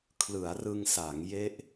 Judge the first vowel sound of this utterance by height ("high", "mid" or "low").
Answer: high